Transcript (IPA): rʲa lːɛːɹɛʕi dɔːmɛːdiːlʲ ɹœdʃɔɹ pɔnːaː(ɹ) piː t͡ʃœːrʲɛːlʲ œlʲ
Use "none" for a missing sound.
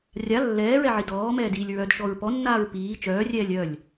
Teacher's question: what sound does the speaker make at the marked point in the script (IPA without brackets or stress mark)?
ɹ